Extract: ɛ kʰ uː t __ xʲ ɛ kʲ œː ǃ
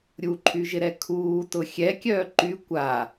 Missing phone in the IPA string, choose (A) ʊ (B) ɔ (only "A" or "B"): A